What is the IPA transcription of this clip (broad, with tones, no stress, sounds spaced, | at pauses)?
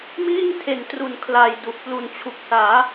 m iː˥˩ ŋ tʰ e˨˩ n t r u˩˦ n kʰ l a˨˩ j d u˨˩ ʔ p l u˨˩ n t͡ɕʰ u˨˩ k̚ s aː˩˦